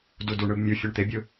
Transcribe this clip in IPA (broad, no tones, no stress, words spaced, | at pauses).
duduɳɯb mʲu fʲɔɳt̪ebʲɯ